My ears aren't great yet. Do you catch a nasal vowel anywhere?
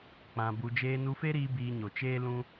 yes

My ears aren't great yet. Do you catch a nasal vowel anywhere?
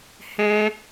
yes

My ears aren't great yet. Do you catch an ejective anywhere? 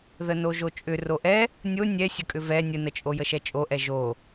yes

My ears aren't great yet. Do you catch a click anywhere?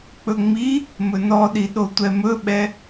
no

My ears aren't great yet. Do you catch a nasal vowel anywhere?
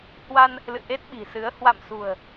no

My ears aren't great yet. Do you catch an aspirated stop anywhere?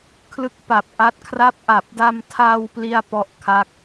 yes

